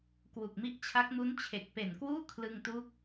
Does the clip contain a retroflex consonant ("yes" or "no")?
no